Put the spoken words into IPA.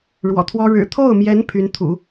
ɻ w ɔ̰˨˩ t̪ʰ w ɔ˥ ɻ ɻ̩˨˩ t̪ʰ o˥˩ ʊ̯ m j ɛ˧˥ n pʰ y˧˥ n t̪ʰ ṵ˨˩˦

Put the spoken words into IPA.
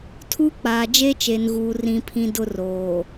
tʰ uː˦ k͡p aː˨ d͡ʒ e˦ t͡ʃ e˨ n ɣ uː˨ r ĩ˦ pʰ ĩ˦ d ʊ˦ r oː˨

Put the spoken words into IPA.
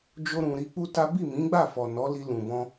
d͡ʒ o˧ ɾ ũ˨ ɾ i˧ k͡p u˦ t a˦ b i˦˨ m ĩ˨˦ ɡ͡b a˦˨ f ɔ˨ n ɔ˨˦ l i˧ l ũ˨ b ɔ̃˧

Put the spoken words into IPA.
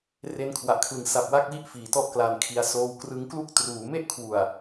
r e˧ n kʰ w a˨˩ ʔ kʰ l ɯ˩˦ ŋ s a˨˩ p̚ w a˦˥ k̚ w i˦˥ ʔ f iː˩˦ t ɔ˥˩ ʔ k l a˧ n kʰ i˧ a̯ s oː˧ w k r ɯ˦˥ ŋ k l u˥˩ k̚ t r uː˩˦ m e˥˩ ʔ kʰ w u˨˩ a̯

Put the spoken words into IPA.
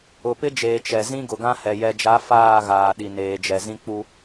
ʊ˨ p ɪ˦ d͡ʒ eː˨ t͡ʃ ɛ˨ z ĩ˦ ɡ ʊ˨ ɡ ã˦ h ɛ˨ j ɛ˨ d͡ʒ a˨˦ f aː˦˨ ɣ aː˨ ɗ i˨ n eː˨ d͡ʒ ɛ˨ z ĩ˦ k͡p u˦

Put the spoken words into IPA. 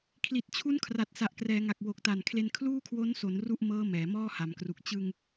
kʰ l i˨˩ t̚ t͡ɕʰ u˦˥ n kʰ r a˨˩ t̚ s a˨˩ ʔ k r ɛː˩˦ ŋ a˨˩ k̚ w o˨˩ k̚ t a˨˩ n kʰ l e˧ n kʰ l uː˥˩ kʰ w o˦˥ n s o˩˦ n r u˥˩ ʔ m ɤː˦˥ m ɛː˩˦ m ɔː˥˩ h a˩˦ m k r u˨˩ k̚ t͡ɕ ɯ˧ ŋ

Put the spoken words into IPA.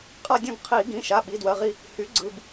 qʼ a˦˨ dʲ ũ˦˨ ɡ qʰ i˧˩˧ ɡ ĩ˩˧˩ ʃ a˩˧˩ ɓ i˩˧˩ d w ɜ˩˧˩ ʁ i˦˨ | h y˩˥ ɡ͡ǀ ɯ˩˧˩ b

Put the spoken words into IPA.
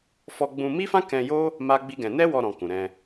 f ɔ˧ ɡ͡b ũ˧ m i˦ f ã˦ k ɛ̃˧ j o˦ | m a˦ ɡ͡b i˦ ɡ ɛ̃˧ n ɛ˦ w ɔ˧ ɾ ɔ̃˨ k ũ˨ ɾ ɛ̃˧

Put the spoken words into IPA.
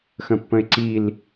x ə̃ pː ə̃ e̯ ǀ i l

